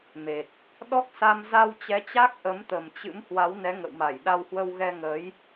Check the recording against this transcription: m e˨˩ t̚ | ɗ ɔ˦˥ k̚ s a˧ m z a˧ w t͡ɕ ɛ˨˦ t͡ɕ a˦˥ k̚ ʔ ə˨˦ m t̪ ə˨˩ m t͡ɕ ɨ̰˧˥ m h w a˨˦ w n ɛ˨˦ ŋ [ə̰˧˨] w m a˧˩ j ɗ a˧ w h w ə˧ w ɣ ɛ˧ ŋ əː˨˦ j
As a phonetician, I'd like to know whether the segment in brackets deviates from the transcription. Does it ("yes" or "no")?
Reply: no